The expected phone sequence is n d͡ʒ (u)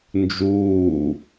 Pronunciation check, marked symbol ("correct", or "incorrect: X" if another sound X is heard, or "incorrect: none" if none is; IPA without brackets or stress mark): incorrect: uː